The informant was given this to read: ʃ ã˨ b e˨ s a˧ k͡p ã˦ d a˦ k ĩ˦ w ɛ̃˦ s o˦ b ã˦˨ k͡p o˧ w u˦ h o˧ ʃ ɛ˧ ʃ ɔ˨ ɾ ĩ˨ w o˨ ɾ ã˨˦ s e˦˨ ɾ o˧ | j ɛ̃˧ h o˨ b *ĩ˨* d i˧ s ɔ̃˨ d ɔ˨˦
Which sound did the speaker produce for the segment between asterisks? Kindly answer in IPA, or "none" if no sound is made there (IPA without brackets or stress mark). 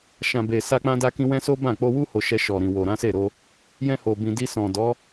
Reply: ĩ˨